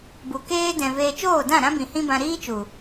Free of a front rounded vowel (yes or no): yes